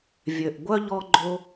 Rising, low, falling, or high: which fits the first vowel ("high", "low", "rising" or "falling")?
low